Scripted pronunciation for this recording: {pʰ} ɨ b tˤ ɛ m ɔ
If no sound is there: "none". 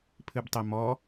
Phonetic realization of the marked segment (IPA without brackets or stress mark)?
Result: pʰ